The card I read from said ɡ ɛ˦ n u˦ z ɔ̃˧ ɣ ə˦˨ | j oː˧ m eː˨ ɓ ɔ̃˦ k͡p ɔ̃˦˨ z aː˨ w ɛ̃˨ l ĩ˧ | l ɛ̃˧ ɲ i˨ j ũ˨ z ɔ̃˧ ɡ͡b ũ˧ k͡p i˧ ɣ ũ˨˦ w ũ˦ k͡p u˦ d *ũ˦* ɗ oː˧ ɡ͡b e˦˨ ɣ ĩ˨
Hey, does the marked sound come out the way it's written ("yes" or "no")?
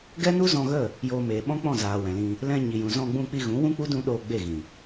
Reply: yes